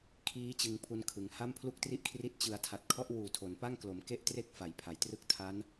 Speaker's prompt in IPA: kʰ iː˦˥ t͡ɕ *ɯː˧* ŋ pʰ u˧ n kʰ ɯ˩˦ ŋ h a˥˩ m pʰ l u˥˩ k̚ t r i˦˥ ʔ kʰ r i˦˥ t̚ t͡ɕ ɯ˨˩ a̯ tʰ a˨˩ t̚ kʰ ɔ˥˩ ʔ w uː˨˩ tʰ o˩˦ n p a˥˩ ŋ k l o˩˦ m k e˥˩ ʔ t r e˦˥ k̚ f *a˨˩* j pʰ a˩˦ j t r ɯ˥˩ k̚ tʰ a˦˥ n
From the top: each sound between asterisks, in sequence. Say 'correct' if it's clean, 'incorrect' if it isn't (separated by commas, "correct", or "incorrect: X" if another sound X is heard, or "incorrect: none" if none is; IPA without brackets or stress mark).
incorrect: ɯ˧, incorrect: a˩˦